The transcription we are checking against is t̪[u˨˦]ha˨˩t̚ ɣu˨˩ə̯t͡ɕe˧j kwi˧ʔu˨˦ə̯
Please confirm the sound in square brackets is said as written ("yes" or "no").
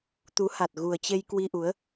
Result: yes